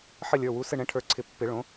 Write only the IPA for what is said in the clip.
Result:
ħ ɘ˦˨ lʲ ə˞˩˧˩ w u˩˧˩ s ɘ˦˨ ɳ ɛ̃˩˥ ʈʰ ə˞˩˥ ǀʰ ɪ˨˩˦ pː ɪ˨˩˦ ɭ õ˩˥

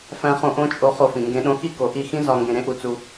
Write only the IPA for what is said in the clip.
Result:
f æ̃˦ χ õ˦ ʔ õ˦ t͡ʃʼ o˧ χ o˧ f ĩ˨ ŋ ɡ ẽ˧ ɗ õ˧ x i˦ k o˨ ʔ i˦˨ x ĩ˦ z ɒ˧ ŋ ɡ ẽ˧ ɾ ẽ˦ ʔ u˧ t͡s u˧

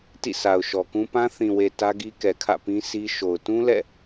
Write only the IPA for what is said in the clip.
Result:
t ḭ˦˨ sʰ a˨ ʊ̯ ʃ ɔ˨ k ũ˦ p ã˦ θ ĩ˨ w e˨ t ä˦ ɡ i˦ k ɛ˨ kʰ ä̰˦˨ p ĩ˦ sʰ i˦ ʃ o˨ ʊ̯ t ũ˦ l ɛ̰˦˨

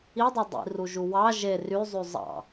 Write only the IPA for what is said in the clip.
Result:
i dˤ ɑ dˤ ḭ r u ʒ u w ɑ ʒ e r y zˤ y zˤ ɑ̰

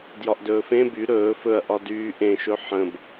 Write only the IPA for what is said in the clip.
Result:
d j ɒ ʔ d ɵː f ẽ b y ɾ ɵː f ɵ ɐ̯ ʔ ɒ d yː ʔ ẽ ʃ ɵ ħ ə̃ b

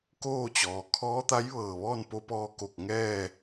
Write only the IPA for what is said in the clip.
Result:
k oː˥˨ t͡ɕ ɔː˩ kʰ ɔː˧˥ t̪ a˧˥ j ʋ ɤː˧˩ ʋ ɔː˥˨ n p o˧˥ p ɔː˧ k o˧˩ k̚ ŋ ɛː˥˨

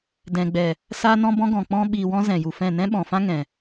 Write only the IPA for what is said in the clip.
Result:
d ɛ̃˨ ɡ͡b ɛ˨ | s aː˧ n ɔ̃˧ b ɔ̃˧ ɡ ɔ̃˨ k͡p ɔ̃˧ ɓ iː˨ w ɔ̃˧ z ɛ̃˨ j u˨ f ɛ̃˦˨ n ɛ̃˦ ɓ ɔ̃˨ f ã˦ ŋ ɛ̃˨

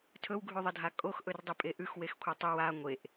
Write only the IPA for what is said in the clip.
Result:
tʰ ɵ w ɡʱ ʉ ðˤ ɐ dʱ a kʼ o x ʔ ɵ r dˤ i pʼ e ʔ ʉ x w e x kʷʰ e tˤ ɨ w a ŋʷ e ʔ

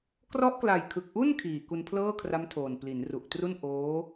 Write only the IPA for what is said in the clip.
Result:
k r ɔ˦˥ ʔ k l a˨˩ j kʰ ɯ˨˩ k̚ ʔ u˥˩ n kʰ iː˨˩ k u˧ n pʰ l ɤː˥˩ kʰ r a˦˥ m tʰ oː˨˩ n p l i˩˦ n r u˨˩ ʔ t r u˥˩ n ʔ oː˦˥

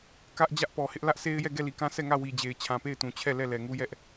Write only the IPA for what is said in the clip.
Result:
k ä˦ ʔ d͡ʑ ä˦ ʔ p ɔ˨ h ɪ˦ ʔ l ä˦ ʔ s e˦ ɪ̯ j ɛ˦˨ ɡ ɛ˦˨ l i˨ k ã˦ s ɛ˦˨ ŋ ä˦˨ w i˨ d͡ʑ e˨ ɪ̯ t͡ɕʰ ã˨ p e˦˨ ɪ̯ t ũ˨ t͡ɕʰ ɛ˦˨ l ɛ˦˨ l ɛ˨ ŋ u˦ j ɛ˦ ʔ

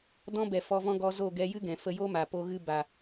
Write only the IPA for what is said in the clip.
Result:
d ɔ̃˦ b ɛ˨ f ɔ˧ v ɔ̃˦ ɡ ɔ˧ z o˦˨ ɡ ɛ˧ j ɨ˦ ɡ ɛ̃˨ f ə˧ j o˦ m a˨ p o˧ ɣ ɨ˧ b a˨

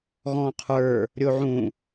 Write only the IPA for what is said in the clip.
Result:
ɣ ɔ̃ qʰ ə˞ | ɾʲ o ʕ ũ

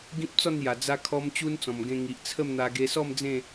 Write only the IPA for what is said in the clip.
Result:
ɡ ĩ˦ p̚ t͡s ɔ˥˧ n j a˨˩ d͡z a˦ kʰ ɔ˦ m t͡ɕ u˦ n t͡s ɔ̃˨˩ m ɡ ẽ˧ ŋ i˨ ʔ t͡sʰ ə˥˧ m n̪ a˧ ɡ e˧ s ɔ˥˧ m d͡z ẽ˥˧

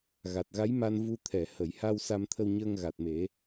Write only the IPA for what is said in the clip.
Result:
ɣ a˨˩ t̚ ɣ a˧˥ j m a˧ n v u˧ t̪ʰ ɛ˨˩˨ h ə˨˩˨ j h a˧ w s a˧ m t̪ʰ ə˧ w ɲ əː˧ ŋ ɣ a˨˩ t̚ m e˨˩˦

